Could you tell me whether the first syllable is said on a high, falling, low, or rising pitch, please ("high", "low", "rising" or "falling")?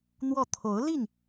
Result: falling